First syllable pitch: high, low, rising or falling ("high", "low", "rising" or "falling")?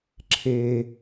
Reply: high